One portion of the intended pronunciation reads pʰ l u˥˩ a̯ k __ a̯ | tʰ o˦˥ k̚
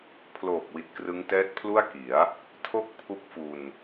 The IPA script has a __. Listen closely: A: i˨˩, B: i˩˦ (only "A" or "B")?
B